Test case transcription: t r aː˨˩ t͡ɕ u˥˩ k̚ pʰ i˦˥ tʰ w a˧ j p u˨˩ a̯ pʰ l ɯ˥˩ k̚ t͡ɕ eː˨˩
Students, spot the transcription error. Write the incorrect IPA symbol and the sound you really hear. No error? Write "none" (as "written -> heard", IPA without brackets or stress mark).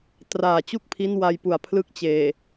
tʰ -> n